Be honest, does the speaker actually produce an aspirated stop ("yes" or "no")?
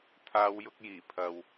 yes